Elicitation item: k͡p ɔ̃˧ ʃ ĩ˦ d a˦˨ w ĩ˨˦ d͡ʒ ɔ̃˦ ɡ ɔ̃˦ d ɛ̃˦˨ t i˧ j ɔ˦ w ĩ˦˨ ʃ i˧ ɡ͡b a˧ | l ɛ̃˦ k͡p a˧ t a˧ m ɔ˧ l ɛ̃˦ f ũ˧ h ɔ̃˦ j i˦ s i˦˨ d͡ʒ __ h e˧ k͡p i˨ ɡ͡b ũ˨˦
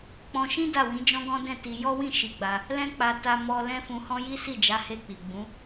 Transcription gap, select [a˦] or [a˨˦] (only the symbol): a˨˦